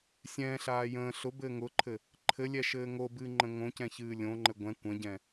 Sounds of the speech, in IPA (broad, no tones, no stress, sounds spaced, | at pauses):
sʲ ɛ̃ ɬ aː j ə̃ː ɬ ʊ b ɘː ŋ ʊ ǃʰ ɘ | ǃʰ ɘ lʲ ɛ ʃ ɘː ŋ o b ɨː ŋ͡ǃ ə̃ ŋ õ c ɛ̃ ç ɨː lʲ õ ŋ͡ǃ ɘ ɡʷ ɛ̃ kʷ ə̃ ɟ ɛ̃